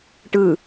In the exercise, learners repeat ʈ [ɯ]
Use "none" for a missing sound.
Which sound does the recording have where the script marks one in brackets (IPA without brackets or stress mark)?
ɯ